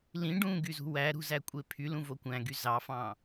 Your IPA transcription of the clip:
l ĩ ɖ ũ ɡ y z ṳ w æ ɾ ṳ z æ kʷʼ e pʰ y l ũ v o kʷ æ̃ ɡ y z ɑ f ɑ̃

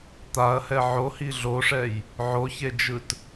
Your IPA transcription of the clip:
t̪ a ɐ̯ h ɛ ʕ o h i ɮ o ʂ ɛ j | ʕ o ç e d͡ʒ ɯ t

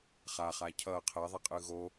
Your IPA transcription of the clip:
χ a χ a cʰ ʌ qʰ ɛ ðˤ i qʼ ɯ ɣ o

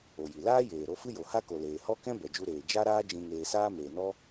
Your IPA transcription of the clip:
o˨ j i˨ l aː˦ j eː˨ ɾ o˦ f ɨ˦ j o˨ h a˦ k o˨ l eː˨ h ɔ˦ k ɛ̃˦ b ɛ˨ d͡ʒ u˧ ɾ eː˨ d͡ʒ a˦ ɾ aː˦ d͡ʒ ĩ˧ ŋ eː˧ s aː˦ m eː˨ n ɔ˦

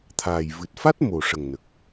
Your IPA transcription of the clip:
t̪ʰ aː˨˩ j v ɨ˨˩ t̚ f a˦˥ t̚ m o˨˩ ʂ ə˨˩ ŋ n ə˨˩ k̚

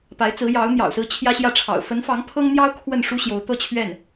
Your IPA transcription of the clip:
p a˧˥ ɪ̯ t͡s ɹ̩˧˥ j ɑ˧˥ ʊ̯ n̪ j ɑ̰˨˩ ʊ̯ s ɹ̩˥˩ t͡ɕʰ j ä˥ ɕ j ä˥˩ ʈ͡ʂʰ ɑ̰˨˩ ʊ̯ f ə˧˥ n f ɑ˧˥ ŋ pʰ ɤ˥ ŋ n̪ j ɑ˥ ʊ̯ kʰ w ə˥˩ n ʂ u˥ ɕ j o˧˥ ʊ̯ t̪ ɤ˥˧ t͡ɕʰ ɥ ɛ˥˩ n

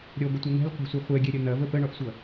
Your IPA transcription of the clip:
ɾʲ ɔ ɡʷ ə tʷ ɐ n̪ ɛ̤ lʲ qʷ ɛ̤ sʷ ɛ χʷ ɛ ɡʲ ɛ ɾʲ ɐ n̪ ɐ v ə p ə ɳ ɔ ʔ sʷ ʌ

